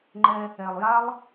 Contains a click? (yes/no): yes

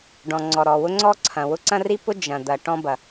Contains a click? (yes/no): yes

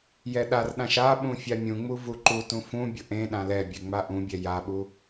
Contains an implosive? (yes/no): yes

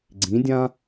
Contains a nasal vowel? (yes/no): yes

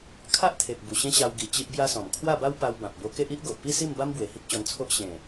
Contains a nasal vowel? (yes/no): yes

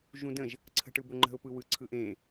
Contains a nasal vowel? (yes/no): yes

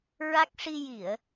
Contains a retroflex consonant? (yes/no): yes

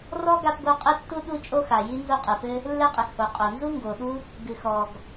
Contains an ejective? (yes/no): yes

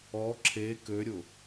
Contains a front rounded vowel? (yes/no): yes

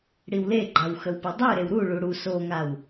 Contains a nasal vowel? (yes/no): no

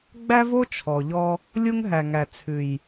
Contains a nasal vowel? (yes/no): no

